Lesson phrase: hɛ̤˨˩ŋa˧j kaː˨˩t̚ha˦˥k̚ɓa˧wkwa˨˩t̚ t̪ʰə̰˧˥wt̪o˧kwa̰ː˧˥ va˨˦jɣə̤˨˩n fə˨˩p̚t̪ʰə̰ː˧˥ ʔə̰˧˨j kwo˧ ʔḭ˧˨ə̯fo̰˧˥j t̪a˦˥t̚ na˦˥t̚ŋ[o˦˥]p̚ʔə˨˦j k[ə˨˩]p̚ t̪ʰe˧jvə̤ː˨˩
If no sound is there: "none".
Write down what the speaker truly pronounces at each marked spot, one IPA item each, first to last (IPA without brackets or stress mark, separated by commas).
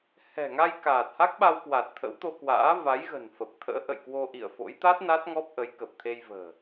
ɔ˦˥, ə˨˩